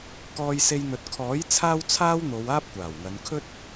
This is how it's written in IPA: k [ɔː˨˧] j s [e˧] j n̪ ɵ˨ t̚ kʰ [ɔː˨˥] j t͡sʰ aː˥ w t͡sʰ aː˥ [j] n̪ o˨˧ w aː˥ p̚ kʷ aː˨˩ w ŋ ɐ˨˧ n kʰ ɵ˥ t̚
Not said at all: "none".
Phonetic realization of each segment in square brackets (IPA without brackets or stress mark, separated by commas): ɔː˧, e˧, ɔː˨˥, w